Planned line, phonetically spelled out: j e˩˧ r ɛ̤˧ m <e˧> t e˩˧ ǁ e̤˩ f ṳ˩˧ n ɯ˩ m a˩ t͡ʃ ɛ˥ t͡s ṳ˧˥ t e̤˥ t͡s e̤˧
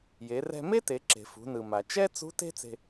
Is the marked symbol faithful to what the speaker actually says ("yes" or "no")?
no